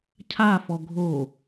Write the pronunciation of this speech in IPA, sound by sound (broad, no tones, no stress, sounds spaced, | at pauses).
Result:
cʰ a f ɔ ɡʱ o